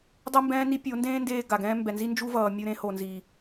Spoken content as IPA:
dˤ e˦ m b ɛ̃ː˦ n i˦ pʲ o˨˦ n d ẽː˦ n d eː˧ ɡ a˨ ɡ ɛ̃ː˦ m b ɛ˨ n z i˦ n d͡ʒ u˦ v ʌː˨ mʲ u˧ ɾ ẽ˧ h o˨ n z i˨

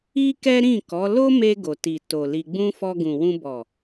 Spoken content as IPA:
i˦ k ɛ˦ ɾ ĩ˦˨ k ɔ˨˦ l o˦ m e˧ ɡ o˨ t i˨ t o˨ l i˧ ɡ͡b ũ˦ f ɔ˧ ɡ ũ˨ w ũ˧ b ɔ˨

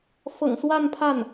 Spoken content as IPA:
f ɤ̰˨˩ ŋ s w a˥˧ n pʰ a˥˩ n

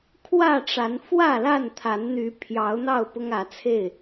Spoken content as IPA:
kʰ w ä˥˨ ʈ͡ʂ a˨˦ n f w ä˥˨ l a˥˨ n t̪ʰ a˨˦ n n̪ y˨˦ pʰ j ɑ˨˦ ʊ̯ n̪ ɑ˥˨ ʊ̯ p ʊ˦ ŋ ä˨˦ t͡sʰ e˥˨ ɪ̯

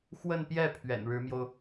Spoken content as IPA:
x w ə˥˧ n p j ɛ˥˩ pʰ ɥ ɛ̰˨˩ n ɻ ɻ̩˧˥ m j o˧ ʊ̯

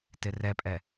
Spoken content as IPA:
t ɪ r ɛ pʼ ɛ

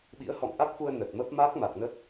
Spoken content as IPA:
ɓ ḭ˧˥ ə̯ h ɔ̰˧˨ ŋ ʔ a˦˥ k̚ f u˧ ə̯ n ə˨˩ t̚ m ə˦˥ p̚ m a˦˥ k̚ m a˨˩ k̚ n ə˦˥ t̚

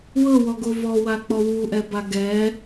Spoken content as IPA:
w ɤ w ɔ ɡ o v ɔ w a k͡p ɔ w u ʔ ɛ b a ɡ ɛ

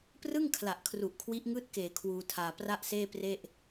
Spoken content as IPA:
p r ɯ˥˩ ŋ kʰ l a˨˩ ʔ kʰ r u˨˩ ʔ kʰ w i˦˥ ʔ ŋ ɯː˥˩ t̚ k eː˨˩ kʰ w uː˧ tʰ aː˧ p r a˥˩ ʔ s eː˥˩ p r e˥˩ ʔ

